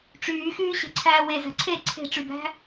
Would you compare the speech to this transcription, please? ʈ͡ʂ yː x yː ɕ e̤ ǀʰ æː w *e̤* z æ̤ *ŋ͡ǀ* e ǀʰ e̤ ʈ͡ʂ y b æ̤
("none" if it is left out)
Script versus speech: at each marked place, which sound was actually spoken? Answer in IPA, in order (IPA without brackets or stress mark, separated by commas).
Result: e, ǀʰ